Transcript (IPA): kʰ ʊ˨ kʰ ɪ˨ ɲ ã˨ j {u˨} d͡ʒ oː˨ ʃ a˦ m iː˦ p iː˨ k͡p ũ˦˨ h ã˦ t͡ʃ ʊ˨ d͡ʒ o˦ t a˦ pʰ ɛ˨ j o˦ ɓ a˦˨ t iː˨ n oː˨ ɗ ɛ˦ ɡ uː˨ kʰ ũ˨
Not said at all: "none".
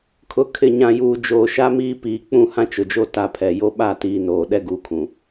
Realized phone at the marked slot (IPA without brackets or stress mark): uː˨